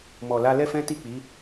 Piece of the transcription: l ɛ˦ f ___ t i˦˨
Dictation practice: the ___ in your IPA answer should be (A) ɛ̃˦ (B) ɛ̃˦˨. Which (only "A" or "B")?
A